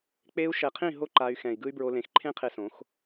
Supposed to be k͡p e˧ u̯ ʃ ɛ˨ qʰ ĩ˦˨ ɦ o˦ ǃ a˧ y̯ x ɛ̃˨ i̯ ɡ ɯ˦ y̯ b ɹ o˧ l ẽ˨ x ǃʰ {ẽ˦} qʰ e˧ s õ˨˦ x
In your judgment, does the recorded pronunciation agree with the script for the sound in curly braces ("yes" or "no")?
yes